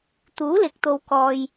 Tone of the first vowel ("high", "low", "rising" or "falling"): rising